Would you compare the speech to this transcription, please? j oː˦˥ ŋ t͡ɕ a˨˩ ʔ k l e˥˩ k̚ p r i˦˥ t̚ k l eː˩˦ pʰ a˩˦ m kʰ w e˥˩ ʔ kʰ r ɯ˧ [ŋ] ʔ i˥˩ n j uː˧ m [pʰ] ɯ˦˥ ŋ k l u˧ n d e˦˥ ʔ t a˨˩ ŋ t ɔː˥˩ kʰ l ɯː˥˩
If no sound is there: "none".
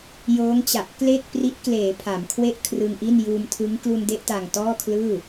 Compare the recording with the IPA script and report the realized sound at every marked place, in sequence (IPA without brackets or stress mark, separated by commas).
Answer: ŋ, tʰ